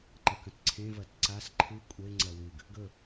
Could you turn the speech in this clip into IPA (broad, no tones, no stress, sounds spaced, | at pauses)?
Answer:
ǃ ɐ k ɐ̃ t ǀʰ ẽ v ɐ t ǀ a s ǃʰ ɨ kʷʼ e ŋ͡ǀ ɐ w ɨ ɡ | ɡ ɵ